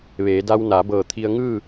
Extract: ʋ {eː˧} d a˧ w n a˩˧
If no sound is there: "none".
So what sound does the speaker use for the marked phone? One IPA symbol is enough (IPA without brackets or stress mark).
eː˩˧